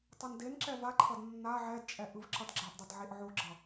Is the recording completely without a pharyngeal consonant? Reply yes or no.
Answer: no